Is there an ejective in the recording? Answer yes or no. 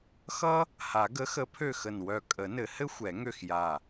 yes